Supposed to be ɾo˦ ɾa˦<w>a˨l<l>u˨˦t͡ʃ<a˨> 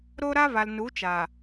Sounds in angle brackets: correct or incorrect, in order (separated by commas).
incorrect, incorrect, correct